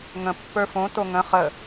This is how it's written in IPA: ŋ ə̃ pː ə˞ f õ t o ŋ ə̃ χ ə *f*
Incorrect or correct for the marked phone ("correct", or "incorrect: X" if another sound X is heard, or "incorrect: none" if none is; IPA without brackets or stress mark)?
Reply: incorrect: none